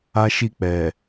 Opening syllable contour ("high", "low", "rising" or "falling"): high